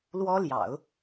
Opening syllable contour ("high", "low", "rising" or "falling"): high